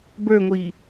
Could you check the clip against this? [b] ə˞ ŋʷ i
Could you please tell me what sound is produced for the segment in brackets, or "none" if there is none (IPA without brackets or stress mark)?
b